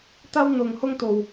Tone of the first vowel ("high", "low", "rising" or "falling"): high